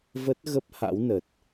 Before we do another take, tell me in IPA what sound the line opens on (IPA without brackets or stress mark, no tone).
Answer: v